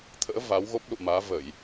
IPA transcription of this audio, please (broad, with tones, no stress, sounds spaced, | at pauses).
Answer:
t̪ʰ ə̰ː˧˥ v a˨˦ w ɣ o˦˥ p̚ l ṵ˧˨ m aː˨˦ v ə˧˩˨ j